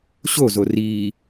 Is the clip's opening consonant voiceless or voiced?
voiceless